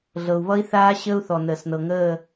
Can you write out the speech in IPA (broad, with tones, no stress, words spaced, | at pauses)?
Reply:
ɮɤ˩u̯βʌ˦˥i̯θaː˦˥ɕəː˦˥u̯ θɔ˩nəː˩snɤ˩ ŋəː˦˨